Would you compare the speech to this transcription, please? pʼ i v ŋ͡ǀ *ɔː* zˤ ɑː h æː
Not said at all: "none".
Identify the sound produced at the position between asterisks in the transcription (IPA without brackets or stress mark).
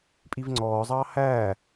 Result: ɔː